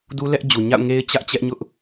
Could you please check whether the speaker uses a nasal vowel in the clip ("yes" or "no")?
no